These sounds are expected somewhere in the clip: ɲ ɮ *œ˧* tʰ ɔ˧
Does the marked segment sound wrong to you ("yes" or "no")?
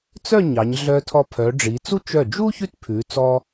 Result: no